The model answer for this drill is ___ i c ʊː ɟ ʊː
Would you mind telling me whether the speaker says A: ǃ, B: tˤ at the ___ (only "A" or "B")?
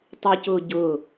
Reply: B